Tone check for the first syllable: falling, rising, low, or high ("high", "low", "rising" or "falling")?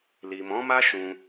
low